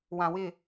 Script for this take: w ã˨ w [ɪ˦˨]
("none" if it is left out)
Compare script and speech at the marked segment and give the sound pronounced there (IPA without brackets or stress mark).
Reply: ɪ˦˨